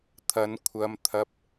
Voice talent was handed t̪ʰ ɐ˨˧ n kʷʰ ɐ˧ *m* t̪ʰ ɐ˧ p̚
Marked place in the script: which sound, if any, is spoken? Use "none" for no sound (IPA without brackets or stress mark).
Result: m